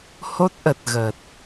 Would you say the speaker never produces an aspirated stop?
yes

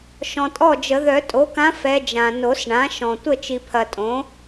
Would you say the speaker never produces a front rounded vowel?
no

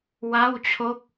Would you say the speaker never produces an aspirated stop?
no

